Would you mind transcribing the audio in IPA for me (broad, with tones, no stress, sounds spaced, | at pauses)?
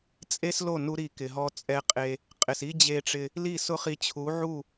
t͡sʼ e˦ s l o˦˨ n u˦ ɾ i˧ k ɪ˨ ɦ ɔ˧ t͡sʼ ɛ˧ qʼ e˧ | qʼ ɪ˨ s i˦ d͡ʑ e˧ ʈ͡ʂ ɪ˧ | l i˦˨ s ʊ˦ χ i˧ t͡ɕʰ u˨˦ ʕ u˦˨